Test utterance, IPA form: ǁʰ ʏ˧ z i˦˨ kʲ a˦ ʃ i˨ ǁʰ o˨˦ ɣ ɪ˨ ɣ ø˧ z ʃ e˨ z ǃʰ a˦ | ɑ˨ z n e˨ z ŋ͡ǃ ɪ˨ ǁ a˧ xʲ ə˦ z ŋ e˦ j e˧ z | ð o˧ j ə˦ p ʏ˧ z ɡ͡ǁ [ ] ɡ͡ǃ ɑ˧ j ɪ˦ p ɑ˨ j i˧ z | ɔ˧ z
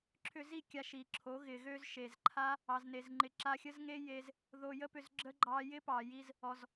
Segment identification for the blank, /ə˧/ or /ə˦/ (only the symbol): ə˧